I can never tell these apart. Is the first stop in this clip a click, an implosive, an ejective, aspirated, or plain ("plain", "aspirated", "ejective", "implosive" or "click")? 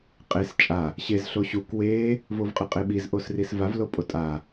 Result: ejective